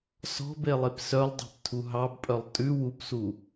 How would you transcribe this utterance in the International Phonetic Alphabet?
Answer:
sɔ̤belˠep sœlˠdˤɑ̤ptʰu ɦɑbpʼœlˠ tʼʉ wupsu

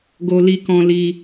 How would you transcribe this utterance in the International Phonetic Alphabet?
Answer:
ɡo˧li˧kɔ̃˧ li˧

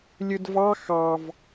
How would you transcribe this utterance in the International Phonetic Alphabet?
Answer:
lʲɯdvɑ xɑv

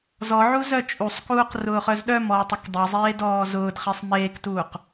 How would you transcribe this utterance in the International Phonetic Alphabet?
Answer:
zɔʕu zœt͡ʃʼusˤkuːq rʊːχœzɗœmɔː tˤʊkdˤezˤeː dɔːzʊːdχesˤ meːktuːq

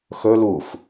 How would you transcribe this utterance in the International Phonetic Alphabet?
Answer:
xɵ luf

